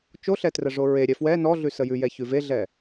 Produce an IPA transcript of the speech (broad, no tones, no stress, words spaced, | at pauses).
t͡ʃoɬɛtrəʐo ɹe ɾʲɛfwɛ nɔɮʉ səjʉjɛ çʉveɮɛ